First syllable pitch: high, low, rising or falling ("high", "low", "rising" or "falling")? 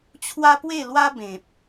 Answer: high